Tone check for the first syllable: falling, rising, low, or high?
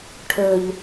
low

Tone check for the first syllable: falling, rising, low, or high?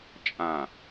low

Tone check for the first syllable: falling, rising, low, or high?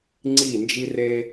falling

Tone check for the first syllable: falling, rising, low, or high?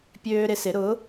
high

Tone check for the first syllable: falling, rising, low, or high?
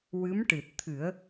rising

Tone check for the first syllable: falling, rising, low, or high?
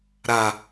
low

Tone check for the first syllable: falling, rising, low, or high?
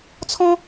high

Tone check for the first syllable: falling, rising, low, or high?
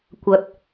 low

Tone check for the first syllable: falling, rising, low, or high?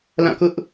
falling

